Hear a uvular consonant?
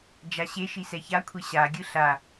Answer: no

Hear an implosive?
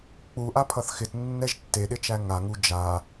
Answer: yes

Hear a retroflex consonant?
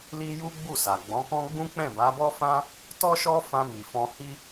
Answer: no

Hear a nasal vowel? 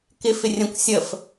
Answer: yes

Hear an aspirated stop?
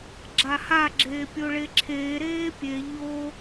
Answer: yes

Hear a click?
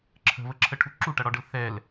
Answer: yes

